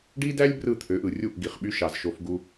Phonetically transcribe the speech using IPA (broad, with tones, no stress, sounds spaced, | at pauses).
ɖ i˦ d æ˦ lʲ b r ɯ˦˨ t̪ʰ ø˨˦ ʔ ɯ˨ rʲ u˦˨ ʔ ɡ i˨ χ ɓ y˧ ʃ ɑ˨ z ʃ o˧ f ɡ u˧